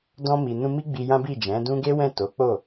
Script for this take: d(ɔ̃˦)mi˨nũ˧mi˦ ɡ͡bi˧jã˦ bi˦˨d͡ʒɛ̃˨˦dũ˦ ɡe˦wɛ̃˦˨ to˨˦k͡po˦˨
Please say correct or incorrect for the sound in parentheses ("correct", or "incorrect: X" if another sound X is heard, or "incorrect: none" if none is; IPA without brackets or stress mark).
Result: incorrect: ɔ̃˧